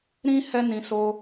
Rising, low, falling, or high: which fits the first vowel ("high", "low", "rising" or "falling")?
high